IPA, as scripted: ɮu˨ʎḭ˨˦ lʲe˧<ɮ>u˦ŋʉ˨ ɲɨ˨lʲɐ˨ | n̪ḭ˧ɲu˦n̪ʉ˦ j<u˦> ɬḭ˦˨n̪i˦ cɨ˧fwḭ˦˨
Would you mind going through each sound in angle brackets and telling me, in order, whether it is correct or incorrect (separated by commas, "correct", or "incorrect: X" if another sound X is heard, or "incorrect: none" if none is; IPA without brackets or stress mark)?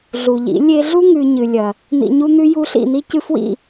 correct, correct